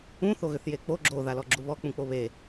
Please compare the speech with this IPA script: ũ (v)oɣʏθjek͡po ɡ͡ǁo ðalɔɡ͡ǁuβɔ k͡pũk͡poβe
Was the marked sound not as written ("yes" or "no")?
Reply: yes